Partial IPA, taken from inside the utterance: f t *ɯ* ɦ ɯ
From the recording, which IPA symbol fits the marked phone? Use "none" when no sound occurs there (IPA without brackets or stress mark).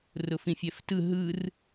ɯ